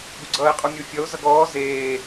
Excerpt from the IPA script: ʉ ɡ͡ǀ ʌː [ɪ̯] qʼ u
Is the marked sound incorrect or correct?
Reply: correct